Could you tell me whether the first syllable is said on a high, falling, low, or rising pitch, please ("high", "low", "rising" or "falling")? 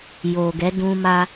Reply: low